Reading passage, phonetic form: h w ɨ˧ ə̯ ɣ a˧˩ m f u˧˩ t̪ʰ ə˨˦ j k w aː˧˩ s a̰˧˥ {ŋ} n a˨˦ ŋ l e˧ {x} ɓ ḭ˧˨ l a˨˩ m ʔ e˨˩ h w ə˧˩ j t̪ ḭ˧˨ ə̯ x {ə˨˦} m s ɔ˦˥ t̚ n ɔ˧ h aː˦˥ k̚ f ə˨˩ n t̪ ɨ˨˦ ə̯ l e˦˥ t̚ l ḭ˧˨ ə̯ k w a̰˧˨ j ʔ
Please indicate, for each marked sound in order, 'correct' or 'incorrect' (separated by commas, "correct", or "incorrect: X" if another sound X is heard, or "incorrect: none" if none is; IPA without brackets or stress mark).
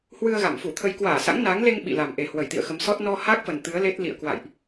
correct, incorrect: ŋ, correct